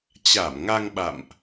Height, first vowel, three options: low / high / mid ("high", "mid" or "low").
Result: low